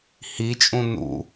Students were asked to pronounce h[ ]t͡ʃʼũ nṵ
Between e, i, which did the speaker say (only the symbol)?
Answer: i